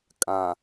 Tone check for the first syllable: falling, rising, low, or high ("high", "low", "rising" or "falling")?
low